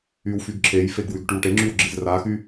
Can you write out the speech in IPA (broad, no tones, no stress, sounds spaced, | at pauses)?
y w f y ɡ ǁʰ e j f e ɡ w y ɡ ʈ y w ʈ e ŋ͡ǁ y w ɡ͡ǁ i z r a x y